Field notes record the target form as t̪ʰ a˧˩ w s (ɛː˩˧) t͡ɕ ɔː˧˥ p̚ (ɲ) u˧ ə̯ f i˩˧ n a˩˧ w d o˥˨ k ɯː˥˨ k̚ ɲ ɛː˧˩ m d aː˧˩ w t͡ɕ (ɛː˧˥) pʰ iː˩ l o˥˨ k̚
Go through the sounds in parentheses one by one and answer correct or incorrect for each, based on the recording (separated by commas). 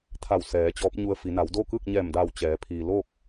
correct, correct, incorrect